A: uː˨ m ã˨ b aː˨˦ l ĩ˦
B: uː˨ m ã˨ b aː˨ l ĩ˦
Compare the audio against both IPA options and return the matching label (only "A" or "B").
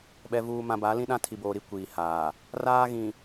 A